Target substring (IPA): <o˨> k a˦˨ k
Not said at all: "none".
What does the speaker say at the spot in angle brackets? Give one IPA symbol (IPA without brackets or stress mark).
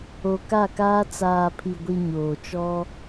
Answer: o˨